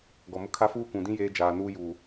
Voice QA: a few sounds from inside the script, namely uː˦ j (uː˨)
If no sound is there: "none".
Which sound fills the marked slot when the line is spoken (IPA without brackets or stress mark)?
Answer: uː˨